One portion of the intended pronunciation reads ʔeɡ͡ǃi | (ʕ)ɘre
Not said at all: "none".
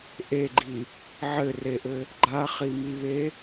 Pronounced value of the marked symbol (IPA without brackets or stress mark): ʕ